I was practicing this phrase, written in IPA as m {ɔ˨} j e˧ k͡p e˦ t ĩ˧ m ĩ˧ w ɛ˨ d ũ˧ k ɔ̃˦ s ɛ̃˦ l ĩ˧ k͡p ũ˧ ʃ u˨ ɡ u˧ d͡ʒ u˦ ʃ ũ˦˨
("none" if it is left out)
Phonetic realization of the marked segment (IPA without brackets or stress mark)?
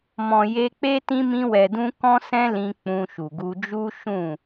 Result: ɔ̃˨